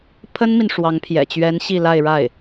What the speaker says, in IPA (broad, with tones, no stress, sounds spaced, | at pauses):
pʰ ə˥ n m i˨ n ʂ w ɑ˧˥ ŋ pʰ j ɛ̰˨˩ t͡ɕ ɥ ɛ˧˥ n ɕ i˥˧ l a˥˧ ɪ̯ ɻ a˥˩ ɪ̯